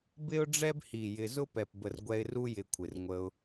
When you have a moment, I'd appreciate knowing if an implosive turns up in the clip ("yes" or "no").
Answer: no